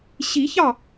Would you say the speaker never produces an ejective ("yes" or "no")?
yes